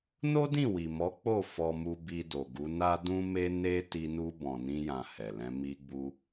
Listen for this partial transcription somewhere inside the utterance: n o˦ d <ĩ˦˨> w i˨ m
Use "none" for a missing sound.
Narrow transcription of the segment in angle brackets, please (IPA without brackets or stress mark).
ĩ˦˨